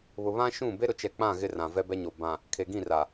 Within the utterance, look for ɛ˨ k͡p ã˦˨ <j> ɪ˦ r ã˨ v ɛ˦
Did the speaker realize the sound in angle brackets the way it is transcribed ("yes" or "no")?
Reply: no